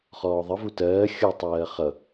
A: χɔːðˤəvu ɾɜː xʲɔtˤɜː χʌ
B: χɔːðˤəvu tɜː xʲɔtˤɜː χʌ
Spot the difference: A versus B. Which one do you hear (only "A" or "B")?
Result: B